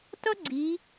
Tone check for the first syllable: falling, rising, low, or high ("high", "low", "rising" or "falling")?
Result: high